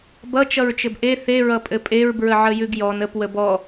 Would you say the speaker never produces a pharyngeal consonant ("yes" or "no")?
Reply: no